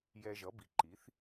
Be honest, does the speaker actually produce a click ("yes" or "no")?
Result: yes